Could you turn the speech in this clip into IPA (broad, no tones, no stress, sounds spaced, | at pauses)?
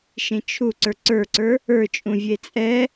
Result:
ʃ ẽ t͡ʃʰ u ǀ ə˞ ǀ ə˞ ǀ ə˞ | ə˞ t͡ʃʼ ũ vʲ e t͡sʼ ɛ